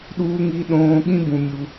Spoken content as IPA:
ɗ uː˧ ŋ i˧ ɗ õː˧ ɠ ĩ˦ b ũ˧ mʲ u˧

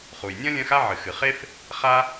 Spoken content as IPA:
χ u˩ j nʲ ɐ̃˥ lʲ ɐ̃˥ x a˥ ʕ ɨ˩ x ɨ˩ χ e˥ f | χ a˥

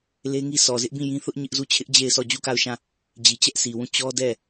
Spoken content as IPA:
l e˦ ŋ i˦ s ɔ˨ z ɪ˦ ʔ b ĩ˦˨ j ĩ˦ θ ʊ˦ ʔ ɲ ɪ˦ ʔ z u˦˨ t͡ɕʰ ɪ˦ ʔ d͡ʑ e˦˨ ɪ̯ s ɔ˦˨ d͡ʑ u˦˨ k a˦˨ ʊ̯ ʃ ã˦˨ | d͡ʑ i˨ t͡ɕ ɛ˦ ʔ sʰ i˨ w ũ˦˨ t͡ɕ ɔ˦ d ɛ˦˨

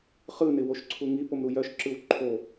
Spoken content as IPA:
χ ɯ n ɪ w o ʃ ǀʰ u ŋ i p o m ɾ u j œ ʃ ǁ ɯ w ǃʰ o

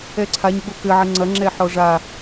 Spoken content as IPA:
ɛ ǀʰ a ɲ ɡ͡b o k ɘ ʕ ɘ ŋ͡ǀ ɐ ŋ͡ǁ ɛ ħ ɔ ʐ a

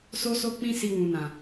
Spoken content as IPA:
s o˧ s o˧ k͡p ĩ˧ s i˧ w ũ˨ n ã˨

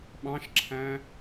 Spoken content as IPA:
ɓ ɑ̃ ʃ ǁʰ æ̃

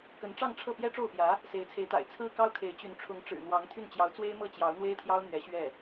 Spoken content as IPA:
k ə˧˥ n ʈ͡ʂ ɑ˥˧ ŋ ʈ͡ʂʰ ɤ˥˩ p j ɛ˥ ʈ͡ʂ o˥˩ ʊ̯ p j ä˧˥ | s e˧˥ ɪ̯ t͡sʰ e˧˥ ɪ̯ t̪ a̰˨˩ ɪ̯ t͡sʰ ɹ̩˥ k ɑ˥ ʊ̯ kʰ e˧˥ ɪ̯ t͡ɕ y˧˥ n ʈ͡ʂʰ ʊ˧˥ ŋ ʈ͡ʂ ɻ̩˨˩ n̪ w ɑ˧˥ ŋ t̪ʰ y˥˩ n t͡ɕ j ɑ˧˥ ʊ̯ t͡s w e˥ ɪ̯ m ɤ˥˩ t͡ɕ j ɑ˧˥ ʊ̯ n̪ w e˥ ɪ̯ t̪ʰ j ɑ˥ ʊ̯ n̪ ɥ ɛ˧˥ ɕ ɥ ɛ˥˩

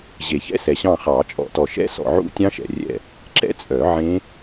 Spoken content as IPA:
ʑ e˨˩˦ ç ɛ̰˦˥ s ɛ˨ ɕ ɑ̃˦˨ χ ɑ˨˩˦ t͡ʃʼ ɔ̰˨˩˦ t ɔ˨ ʃ ɛ̰˦˥ s ɔ̰˨ ʕ ṵ˦˥ tʲ ɑ̃˦˥ ʃ ɛ̰˨ rʲ ɛ̰˦˨ | ǁ ɛ̰˦˥ t͡sʼ œ˨˩˦ ʕ ẽ˦˥

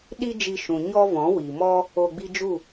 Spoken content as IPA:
ɗ i˦ d͡ʒ i˧ ʃ ũ˨ ɲ ɔ˦ v ɔ̃˨˦ w i˨ m ɔ˦ | o˧ ɡ͡b i˦ d͡ʒ u˦˨

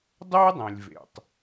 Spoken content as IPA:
dˤ o˥ dˤ ẽ˩ lʲ v ḛ˩ tˤ

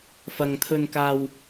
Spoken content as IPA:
f ɐ˨ ŋ t̪ʰ ɵ˧ n k aː˧ w

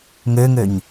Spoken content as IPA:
ŋ ø ŋ ø ɲ

